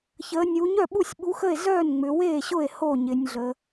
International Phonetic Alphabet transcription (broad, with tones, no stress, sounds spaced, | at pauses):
ç əː˩˧ nʲ u˩˧ ɲ œ˥˩ ɓ u˥˩ sʲ ɓ u˨˥ x ə˥˩ e̯ z œː˥˩ n ŋ͡m ʏ˩˧ w eː˥˩ ɕ ʊ˥˩ e̯ h o˥˩ ɲ ɪ˩˧ nʲ ɮ ə˩˧